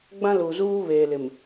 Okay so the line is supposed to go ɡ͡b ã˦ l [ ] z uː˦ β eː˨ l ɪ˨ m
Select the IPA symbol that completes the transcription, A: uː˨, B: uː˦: A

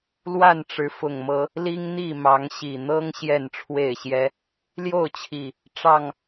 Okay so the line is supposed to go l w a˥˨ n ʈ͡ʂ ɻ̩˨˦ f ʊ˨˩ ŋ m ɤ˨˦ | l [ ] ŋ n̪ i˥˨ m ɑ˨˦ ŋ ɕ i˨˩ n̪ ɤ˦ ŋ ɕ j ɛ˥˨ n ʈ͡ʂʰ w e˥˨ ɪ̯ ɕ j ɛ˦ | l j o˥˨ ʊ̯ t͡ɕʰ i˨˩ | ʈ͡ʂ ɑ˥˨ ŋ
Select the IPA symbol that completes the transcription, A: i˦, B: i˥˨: A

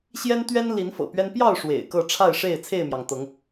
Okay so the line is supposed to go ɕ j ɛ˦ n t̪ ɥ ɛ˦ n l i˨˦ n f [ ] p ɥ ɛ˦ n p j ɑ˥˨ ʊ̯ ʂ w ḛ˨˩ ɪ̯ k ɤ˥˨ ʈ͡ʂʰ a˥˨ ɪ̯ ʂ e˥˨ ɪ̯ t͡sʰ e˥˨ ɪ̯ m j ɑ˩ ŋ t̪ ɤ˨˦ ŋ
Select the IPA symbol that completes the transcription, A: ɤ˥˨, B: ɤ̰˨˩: B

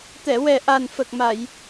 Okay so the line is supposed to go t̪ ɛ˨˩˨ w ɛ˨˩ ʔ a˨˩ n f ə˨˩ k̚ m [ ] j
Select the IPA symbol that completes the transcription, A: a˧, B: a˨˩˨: B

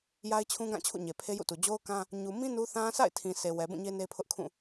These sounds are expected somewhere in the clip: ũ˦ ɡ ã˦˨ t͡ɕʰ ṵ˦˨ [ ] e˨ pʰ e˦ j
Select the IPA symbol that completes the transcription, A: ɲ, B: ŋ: A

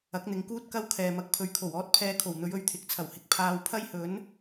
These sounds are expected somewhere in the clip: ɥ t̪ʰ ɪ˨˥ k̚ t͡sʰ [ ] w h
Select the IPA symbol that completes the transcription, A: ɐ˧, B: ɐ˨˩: B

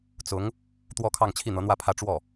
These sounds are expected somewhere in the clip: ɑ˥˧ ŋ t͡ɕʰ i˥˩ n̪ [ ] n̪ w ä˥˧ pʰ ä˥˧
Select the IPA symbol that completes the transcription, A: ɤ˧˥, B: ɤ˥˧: A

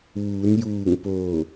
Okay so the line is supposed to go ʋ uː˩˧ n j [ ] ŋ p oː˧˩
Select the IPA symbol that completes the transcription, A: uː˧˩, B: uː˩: A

